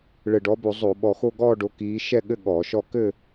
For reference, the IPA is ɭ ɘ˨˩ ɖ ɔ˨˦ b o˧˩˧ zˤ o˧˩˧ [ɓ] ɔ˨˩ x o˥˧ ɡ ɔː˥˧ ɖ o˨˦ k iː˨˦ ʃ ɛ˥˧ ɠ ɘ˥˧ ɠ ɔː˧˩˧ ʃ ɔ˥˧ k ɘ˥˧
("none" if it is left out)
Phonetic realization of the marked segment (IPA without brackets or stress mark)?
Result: ɓ